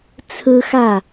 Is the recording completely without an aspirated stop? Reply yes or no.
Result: no